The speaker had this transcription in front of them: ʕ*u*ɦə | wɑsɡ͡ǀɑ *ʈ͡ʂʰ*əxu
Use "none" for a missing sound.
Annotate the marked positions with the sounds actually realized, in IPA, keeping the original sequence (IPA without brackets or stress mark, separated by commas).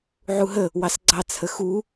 u, t͡sʰ